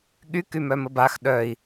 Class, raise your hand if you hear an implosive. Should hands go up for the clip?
yes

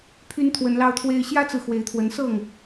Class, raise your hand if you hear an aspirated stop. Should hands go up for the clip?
yes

